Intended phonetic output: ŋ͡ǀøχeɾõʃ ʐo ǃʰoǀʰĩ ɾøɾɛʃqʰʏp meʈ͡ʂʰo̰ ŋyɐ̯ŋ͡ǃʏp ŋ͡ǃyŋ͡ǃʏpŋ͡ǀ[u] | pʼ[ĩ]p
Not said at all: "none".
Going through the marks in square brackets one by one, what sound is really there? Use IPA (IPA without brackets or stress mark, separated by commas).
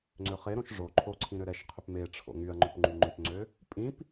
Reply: ø, ĩ